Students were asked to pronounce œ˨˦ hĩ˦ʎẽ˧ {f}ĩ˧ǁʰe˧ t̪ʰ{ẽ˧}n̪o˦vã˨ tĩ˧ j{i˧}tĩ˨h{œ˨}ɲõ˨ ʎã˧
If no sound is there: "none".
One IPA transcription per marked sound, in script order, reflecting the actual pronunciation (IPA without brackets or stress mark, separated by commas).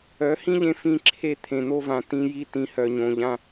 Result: f, ẽ˨, i˧, œ˨